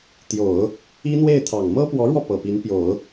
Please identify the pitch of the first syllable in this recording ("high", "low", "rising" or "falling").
low